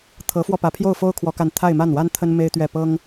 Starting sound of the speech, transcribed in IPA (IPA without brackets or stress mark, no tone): t̪ʰ